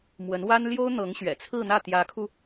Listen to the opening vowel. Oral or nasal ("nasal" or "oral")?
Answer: oral